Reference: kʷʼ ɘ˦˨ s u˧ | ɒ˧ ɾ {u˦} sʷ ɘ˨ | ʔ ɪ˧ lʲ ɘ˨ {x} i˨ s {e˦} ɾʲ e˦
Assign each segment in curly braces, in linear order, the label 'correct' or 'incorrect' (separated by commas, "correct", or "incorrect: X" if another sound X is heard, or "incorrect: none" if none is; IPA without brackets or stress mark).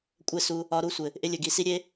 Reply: correct, incorrect: ɡ, incorrect: i˦